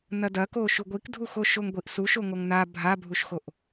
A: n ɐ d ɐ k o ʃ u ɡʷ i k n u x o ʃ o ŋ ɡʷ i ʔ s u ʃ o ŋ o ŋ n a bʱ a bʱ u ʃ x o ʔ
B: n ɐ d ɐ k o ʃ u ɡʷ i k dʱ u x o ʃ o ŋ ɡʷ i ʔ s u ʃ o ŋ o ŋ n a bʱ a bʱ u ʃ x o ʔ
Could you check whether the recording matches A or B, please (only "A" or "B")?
B